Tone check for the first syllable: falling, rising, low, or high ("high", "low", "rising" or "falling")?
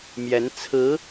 rising